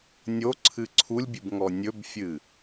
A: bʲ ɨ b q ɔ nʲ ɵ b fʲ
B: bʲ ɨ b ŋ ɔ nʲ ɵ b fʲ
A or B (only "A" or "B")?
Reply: B